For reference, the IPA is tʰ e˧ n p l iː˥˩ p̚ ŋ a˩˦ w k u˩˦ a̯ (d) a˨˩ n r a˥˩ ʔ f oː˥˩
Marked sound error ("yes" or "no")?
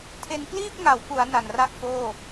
yes